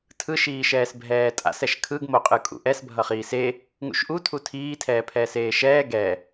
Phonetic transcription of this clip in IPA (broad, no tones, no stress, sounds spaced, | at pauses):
tʰ ɯ ʃ iː ʃ ɛː s bʱ ɛː tʼ a̰ s ɛ ʃ kʰ ɯ ɡ m o qʼ ɯ kʼ ṵ ʔ ɛ s bʱ ʌ χ iː s e | ŋ ṵ ʃ ʔ u tʰ u tʰ iː tʰ ɛː pʰ ɛː s eː ʃ ɛː ɡ ɛ